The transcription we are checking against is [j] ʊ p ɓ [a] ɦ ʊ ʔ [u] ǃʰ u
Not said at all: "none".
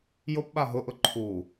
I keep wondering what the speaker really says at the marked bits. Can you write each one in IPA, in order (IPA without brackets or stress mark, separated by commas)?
j, a, ʊ